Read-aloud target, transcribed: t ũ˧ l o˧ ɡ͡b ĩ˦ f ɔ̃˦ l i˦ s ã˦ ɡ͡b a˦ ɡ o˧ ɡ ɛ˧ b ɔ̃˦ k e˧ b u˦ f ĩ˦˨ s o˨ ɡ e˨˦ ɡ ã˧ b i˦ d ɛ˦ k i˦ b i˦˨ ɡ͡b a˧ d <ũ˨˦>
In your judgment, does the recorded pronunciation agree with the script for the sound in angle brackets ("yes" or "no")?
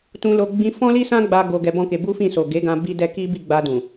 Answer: no